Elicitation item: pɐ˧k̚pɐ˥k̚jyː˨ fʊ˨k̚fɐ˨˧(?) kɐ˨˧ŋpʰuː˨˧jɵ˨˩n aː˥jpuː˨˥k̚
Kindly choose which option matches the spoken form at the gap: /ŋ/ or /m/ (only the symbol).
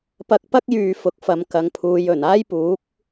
m